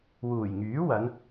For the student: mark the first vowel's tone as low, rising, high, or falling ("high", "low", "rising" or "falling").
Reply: low